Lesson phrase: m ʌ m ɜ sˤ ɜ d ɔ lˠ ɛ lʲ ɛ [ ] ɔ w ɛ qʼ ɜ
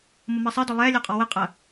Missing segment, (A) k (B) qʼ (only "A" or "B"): B